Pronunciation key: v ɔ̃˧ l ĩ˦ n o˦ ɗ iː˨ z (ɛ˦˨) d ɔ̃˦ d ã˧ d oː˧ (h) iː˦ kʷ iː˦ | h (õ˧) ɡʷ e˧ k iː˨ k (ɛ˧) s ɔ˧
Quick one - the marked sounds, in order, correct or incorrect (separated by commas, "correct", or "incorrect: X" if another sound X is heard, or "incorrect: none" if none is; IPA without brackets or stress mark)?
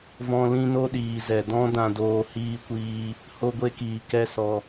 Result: incorrect: ɛ˨, correct, incorrect: o˧, incorrect: ɛ˦